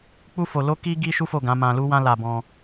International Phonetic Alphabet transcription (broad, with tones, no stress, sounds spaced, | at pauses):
k͡p u˦ f o˧ l o˦ k i˦ ɡ i˦ ʃ u˦ f o˦˨ ɡ ã˨˦ m ã˧ l u˦ w ã˦ l a˧ b ɔ̃˧